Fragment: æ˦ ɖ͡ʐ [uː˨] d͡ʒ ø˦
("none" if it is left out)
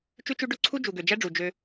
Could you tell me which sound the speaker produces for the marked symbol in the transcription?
u˨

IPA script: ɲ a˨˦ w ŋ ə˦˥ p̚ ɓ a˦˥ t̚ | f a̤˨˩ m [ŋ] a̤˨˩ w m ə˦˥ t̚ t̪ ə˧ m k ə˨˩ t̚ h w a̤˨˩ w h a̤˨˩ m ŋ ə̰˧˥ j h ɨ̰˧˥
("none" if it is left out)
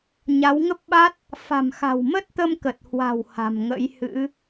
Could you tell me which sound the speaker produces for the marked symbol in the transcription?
x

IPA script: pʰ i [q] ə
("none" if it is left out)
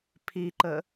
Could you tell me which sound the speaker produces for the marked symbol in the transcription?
ǃ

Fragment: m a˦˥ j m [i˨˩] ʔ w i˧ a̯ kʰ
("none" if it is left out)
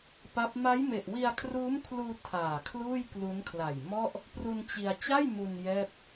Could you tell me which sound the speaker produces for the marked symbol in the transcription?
e˨˩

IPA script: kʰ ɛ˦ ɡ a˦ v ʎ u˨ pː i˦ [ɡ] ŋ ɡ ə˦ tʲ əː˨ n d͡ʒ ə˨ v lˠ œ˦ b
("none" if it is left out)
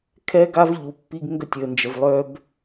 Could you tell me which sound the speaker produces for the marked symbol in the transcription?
ɡ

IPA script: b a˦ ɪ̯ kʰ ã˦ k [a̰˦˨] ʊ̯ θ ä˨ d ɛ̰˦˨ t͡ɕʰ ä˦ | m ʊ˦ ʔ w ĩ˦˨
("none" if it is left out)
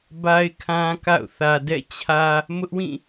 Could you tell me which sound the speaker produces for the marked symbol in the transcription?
a̰˦˨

